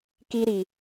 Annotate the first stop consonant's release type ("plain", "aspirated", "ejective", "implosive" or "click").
plain